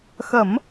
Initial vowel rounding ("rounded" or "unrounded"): unrounded